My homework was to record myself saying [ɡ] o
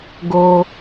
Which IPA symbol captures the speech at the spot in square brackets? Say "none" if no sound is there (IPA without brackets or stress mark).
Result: ɡ